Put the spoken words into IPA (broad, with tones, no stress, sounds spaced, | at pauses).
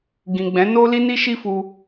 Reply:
ɡ ĩ˨ ɡ͡b ɛ̃˨˦ n o˦ l i˦ n i˦ ʃ i˦ f u˧